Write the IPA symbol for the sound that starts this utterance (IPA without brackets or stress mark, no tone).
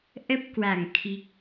ʔ